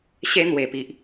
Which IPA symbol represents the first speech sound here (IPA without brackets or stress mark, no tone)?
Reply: ɕ